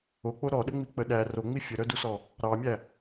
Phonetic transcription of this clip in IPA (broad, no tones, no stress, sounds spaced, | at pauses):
o k͡p o ɾ ɔ ɗ ə ŋ͡m i k͡p ə ɗ æ r o ŋ͡m i fʲ ə ɾ œ d u s ɔ | ɾ ɑ mʲ æ